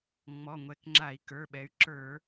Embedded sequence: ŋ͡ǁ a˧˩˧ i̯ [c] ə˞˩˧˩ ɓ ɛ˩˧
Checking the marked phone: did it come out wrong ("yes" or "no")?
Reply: yes